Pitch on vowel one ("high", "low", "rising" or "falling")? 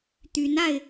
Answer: rising